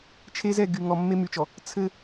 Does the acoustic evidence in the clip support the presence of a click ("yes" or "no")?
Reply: no